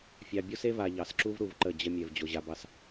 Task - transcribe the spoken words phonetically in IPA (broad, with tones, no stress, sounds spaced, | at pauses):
fʲ ɑ˨ bʲ o˦ s e˦ v a˨ ʎ ɑ˨ s ǁ u˦ v ɾ u˨ v ǃ ə˦˨ d͡ʑ ə˦ mʲ ɛ˨ v d͡ʑ o˨ ʑ a˨ b ɑ˨ s